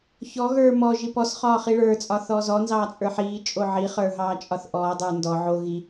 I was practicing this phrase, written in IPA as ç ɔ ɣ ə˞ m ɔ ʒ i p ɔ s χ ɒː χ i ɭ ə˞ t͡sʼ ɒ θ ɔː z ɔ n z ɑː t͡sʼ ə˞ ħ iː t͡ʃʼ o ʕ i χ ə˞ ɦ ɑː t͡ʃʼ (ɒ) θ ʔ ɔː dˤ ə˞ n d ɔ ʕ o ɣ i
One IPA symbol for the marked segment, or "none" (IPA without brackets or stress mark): ɒ